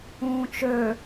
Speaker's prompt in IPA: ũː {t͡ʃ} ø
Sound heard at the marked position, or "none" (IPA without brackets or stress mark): t͡ʃ